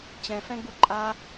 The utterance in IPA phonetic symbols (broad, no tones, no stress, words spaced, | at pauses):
t͡ɕɛ̃fɛ̃ɡ͡bu ǃʼa